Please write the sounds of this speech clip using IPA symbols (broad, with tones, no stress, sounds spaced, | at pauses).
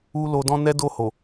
u˦ l o˧ d ɔ̃˦ n ɛ˦ d o˦˨ h o˨